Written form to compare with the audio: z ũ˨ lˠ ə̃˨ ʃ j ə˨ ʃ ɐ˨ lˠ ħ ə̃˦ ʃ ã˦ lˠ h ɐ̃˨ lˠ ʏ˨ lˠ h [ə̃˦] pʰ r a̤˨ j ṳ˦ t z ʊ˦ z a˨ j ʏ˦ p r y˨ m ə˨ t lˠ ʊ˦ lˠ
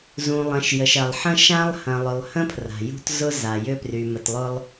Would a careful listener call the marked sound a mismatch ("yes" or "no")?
no